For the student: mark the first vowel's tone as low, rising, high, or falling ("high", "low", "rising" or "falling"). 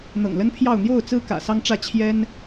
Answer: low